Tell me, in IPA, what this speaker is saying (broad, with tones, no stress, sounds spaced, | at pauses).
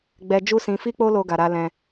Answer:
ɡ͡b ɛ˧ d͡ʒ u˦ s ĩ˧ f i˦ k͡p o˦ l o˦ ɡ a˧ ɾ a˦ l ɛ̃˧